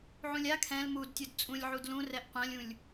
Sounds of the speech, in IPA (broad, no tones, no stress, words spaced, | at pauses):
ʕũlʲa kʰɛ̃l mud tʲudt͡sʼũlʲ ʕudlũ rɛʔqʷãlʲũlʲ